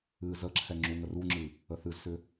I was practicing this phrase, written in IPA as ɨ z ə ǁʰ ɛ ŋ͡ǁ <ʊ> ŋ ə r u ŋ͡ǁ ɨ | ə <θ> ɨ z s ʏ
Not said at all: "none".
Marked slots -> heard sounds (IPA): u, θ

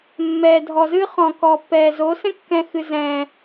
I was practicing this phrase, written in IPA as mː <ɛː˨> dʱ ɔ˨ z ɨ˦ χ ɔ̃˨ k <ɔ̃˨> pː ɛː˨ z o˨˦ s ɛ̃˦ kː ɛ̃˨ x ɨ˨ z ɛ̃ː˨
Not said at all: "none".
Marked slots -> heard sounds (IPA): ɛː˨, ɔ˨

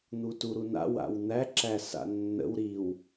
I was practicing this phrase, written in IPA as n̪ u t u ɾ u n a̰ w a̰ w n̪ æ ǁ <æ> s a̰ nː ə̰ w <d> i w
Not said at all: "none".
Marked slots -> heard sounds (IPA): æ, ɾ

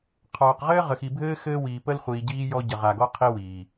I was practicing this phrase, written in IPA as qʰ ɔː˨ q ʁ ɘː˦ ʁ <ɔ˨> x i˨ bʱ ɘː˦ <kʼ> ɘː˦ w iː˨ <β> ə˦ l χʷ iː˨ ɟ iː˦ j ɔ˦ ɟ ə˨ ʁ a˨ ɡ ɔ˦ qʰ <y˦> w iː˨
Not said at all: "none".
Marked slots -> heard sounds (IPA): ə˨, x, p, i˦

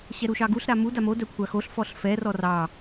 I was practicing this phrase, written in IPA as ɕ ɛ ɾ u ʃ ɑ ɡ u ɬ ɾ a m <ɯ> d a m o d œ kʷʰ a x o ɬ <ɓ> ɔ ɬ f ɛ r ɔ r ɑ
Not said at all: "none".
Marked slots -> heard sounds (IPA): u, f

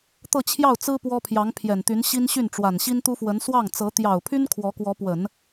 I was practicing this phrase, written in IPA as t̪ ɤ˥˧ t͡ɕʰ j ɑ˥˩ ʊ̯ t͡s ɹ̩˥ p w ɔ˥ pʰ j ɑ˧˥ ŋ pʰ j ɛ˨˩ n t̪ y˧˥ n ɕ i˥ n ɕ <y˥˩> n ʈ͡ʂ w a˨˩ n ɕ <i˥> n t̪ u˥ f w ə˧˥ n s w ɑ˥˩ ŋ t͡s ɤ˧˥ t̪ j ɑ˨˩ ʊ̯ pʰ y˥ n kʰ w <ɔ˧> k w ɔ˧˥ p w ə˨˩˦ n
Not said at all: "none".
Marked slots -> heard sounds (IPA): y˥˩, i˥, ɔ˧˥

